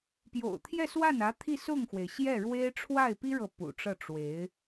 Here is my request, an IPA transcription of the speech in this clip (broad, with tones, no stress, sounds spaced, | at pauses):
p j o̰˨˩ ʊ̯ t̪ʰ j ɛ˥˧ s w a˥˩ n ä˧˥ t̪ʰ i˥˧ s ʊ˥˩ ŋ x w e˩ ɪ̯ ɕ j ɛ˥˩ ɻ w e˥ ɪ̯ ʈ͡ʂʰ w a˥˩ ɪ̯ p i˥ ɻ ɤ˨ p ṵ˨˩ ʈ͡ʂ ɤ˥˩ ʈ͡ʂ w e˧˥ ɪ̯